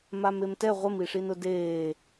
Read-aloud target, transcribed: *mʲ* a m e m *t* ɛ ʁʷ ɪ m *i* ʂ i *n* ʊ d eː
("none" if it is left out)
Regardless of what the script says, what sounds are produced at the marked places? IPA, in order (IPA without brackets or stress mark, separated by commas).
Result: m, t, i, n